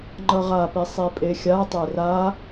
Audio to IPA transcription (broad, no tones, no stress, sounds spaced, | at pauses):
ŋ͡ǃ ʌ ʁ a p i sˤ i pʼ e xʲ a tˤ e r a